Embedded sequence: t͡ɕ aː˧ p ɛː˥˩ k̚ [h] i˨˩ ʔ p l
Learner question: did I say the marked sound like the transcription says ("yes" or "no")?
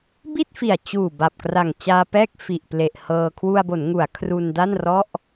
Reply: no